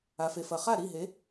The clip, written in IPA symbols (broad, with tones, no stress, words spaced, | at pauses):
a˩fe˩fɐ˩χa˥˩ ɾi˥˩ɦe˩˥